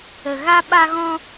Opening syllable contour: low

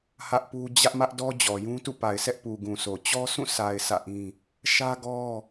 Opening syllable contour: high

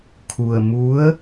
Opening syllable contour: low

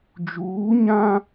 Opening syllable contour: rising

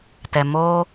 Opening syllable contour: low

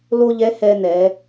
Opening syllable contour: high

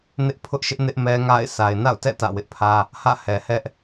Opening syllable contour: high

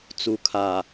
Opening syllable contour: low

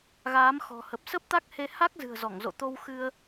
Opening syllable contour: rising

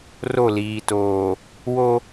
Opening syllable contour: falling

